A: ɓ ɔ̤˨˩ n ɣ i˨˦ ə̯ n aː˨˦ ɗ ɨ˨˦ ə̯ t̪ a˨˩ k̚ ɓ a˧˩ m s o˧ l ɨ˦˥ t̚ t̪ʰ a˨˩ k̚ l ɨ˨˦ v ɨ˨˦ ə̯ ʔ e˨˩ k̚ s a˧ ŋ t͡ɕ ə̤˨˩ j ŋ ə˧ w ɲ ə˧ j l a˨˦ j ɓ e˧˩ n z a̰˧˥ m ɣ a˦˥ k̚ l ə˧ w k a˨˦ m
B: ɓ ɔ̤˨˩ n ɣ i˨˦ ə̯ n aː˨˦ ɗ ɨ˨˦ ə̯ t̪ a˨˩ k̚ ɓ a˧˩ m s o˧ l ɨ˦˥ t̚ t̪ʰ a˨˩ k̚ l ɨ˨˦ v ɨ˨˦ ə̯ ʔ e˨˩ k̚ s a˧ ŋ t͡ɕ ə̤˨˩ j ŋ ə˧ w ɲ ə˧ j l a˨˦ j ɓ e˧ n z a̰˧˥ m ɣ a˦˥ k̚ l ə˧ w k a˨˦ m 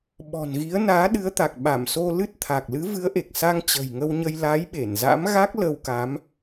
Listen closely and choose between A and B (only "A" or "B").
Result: A